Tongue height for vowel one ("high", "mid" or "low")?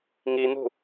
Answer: high